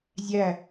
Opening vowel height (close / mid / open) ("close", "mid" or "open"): open